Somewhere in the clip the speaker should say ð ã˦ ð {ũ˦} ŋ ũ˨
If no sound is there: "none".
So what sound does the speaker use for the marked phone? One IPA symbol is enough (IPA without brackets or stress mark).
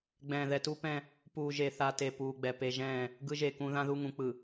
u˦